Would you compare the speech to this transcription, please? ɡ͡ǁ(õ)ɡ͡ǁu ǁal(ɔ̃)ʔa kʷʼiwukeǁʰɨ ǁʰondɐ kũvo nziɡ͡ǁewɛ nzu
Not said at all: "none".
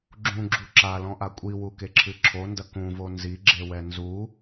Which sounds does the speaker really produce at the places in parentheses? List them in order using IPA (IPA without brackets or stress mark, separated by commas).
ũ, ɔ̃